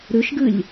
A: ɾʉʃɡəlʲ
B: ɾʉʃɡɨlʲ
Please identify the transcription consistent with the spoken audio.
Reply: B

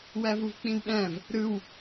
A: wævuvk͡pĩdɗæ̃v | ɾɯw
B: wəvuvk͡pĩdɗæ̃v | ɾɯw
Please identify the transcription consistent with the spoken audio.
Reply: A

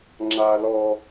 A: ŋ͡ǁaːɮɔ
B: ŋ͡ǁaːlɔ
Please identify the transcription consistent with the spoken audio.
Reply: B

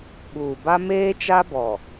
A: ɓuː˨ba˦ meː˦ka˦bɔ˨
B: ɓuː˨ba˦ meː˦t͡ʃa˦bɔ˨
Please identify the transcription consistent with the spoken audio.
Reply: B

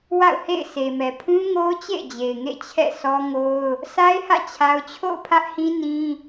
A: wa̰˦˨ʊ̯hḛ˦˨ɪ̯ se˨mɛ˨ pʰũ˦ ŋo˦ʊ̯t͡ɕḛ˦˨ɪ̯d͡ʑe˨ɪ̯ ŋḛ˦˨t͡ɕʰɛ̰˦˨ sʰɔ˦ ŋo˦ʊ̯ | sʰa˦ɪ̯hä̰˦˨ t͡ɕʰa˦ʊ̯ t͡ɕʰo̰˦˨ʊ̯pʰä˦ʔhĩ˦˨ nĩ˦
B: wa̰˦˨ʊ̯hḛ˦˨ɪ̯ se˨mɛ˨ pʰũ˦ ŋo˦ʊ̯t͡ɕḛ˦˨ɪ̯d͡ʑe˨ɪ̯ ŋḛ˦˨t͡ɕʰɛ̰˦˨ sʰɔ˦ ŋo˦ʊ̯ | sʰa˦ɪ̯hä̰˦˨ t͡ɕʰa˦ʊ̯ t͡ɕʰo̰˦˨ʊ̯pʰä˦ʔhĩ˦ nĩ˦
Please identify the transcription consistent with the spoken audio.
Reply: B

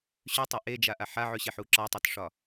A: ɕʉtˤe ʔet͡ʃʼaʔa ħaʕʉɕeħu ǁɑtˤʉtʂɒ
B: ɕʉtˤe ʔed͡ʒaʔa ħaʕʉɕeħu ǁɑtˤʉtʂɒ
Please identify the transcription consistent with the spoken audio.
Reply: B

